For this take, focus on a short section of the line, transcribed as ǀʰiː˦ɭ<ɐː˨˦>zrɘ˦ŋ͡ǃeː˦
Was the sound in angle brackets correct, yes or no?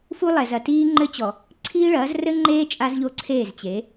yes